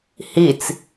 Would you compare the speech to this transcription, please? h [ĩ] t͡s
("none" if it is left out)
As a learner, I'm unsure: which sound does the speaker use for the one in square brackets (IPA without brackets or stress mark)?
i